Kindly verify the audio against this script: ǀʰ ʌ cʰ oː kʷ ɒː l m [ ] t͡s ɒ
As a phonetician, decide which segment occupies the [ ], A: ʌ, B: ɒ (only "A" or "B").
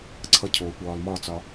B